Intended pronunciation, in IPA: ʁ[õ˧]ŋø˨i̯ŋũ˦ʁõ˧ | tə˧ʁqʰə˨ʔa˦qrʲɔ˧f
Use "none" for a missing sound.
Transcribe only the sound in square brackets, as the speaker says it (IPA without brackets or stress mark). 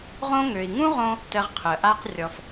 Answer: õ˧